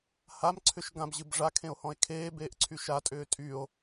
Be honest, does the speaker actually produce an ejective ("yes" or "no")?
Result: yes